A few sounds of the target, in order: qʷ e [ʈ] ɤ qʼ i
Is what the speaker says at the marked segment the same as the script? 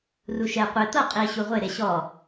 no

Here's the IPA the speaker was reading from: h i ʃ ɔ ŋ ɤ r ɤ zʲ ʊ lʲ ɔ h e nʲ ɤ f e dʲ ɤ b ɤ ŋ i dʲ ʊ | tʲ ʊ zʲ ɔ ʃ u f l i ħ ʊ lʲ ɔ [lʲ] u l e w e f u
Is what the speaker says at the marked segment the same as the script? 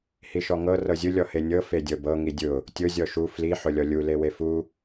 yes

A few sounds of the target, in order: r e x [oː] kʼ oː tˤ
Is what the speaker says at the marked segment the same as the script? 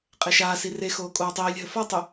yes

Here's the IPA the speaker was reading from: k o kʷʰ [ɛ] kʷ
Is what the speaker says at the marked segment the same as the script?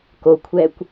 yes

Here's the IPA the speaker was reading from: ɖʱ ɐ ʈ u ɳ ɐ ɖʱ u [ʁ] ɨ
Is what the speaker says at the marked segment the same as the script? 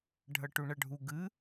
no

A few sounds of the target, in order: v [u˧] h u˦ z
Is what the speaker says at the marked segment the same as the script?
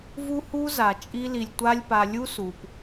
no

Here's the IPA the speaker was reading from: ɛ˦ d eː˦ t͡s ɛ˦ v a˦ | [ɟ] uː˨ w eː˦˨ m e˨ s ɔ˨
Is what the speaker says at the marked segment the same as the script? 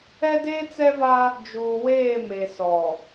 no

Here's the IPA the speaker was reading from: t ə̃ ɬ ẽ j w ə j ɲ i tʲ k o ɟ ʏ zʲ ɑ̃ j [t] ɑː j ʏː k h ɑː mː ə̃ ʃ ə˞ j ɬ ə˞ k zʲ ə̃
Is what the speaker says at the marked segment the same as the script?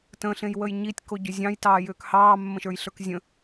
yes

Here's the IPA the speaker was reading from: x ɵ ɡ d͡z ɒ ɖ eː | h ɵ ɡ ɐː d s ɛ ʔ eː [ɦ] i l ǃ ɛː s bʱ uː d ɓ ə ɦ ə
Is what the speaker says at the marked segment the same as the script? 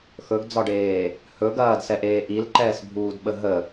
no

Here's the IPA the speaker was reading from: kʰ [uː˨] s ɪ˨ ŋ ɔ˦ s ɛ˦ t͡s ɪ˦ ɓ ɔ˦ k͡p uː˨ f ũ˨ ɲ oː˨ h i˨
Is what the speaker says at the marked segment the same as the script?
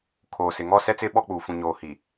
no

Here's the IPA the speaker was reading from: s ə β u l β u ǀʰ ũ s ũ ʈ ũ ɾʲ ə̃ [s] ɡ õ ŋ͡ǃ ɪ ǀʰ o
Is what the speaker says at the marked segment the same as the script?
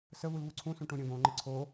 no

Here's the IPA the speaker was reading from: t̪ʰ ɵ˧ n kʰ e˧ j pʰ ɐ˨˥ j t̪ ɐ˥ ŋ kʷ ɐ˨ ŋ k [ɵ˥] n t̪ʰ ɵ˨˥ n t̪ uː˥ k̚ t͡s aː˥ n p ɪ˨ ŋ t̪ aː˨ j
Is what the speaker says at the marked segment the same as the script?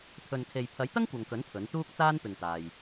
no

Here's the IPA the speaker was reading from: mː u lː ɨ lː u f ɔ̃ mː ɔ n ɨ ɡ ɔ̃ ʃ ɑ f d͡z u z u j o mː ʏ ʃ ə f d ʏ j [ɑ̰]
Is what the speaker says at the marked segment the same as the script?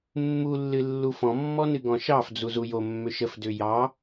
no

